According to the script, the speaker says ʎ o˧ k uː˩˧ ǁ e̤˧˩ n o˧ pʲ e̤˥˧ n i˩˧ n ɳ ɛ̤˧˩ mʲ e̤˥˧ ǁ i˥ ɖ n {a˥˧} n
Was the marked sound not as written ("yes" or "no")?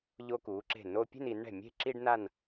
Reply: no